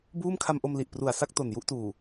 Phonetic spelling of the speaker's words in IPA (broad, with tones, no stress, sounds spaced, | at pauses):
b uː˥˩ m kʰ a˧ m ʔ o˧ m l i˨˩ ʔ p r u˨˩ a̯ s a˥˩ k̚ t o˨˩ n j u˥˩ ʔ t uː˨˩